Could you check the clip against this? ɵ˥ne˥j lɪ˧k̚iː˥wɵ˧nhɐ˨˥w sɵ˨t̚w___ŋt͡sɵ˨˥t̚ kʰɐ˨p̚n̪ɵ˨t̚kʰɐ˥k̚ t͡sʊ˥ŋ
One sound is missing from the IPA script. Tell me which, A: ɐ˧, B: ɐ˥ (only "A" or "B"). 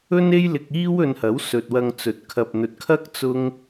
A